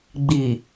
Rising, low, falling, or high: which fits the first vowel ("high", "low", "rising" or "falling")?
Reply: low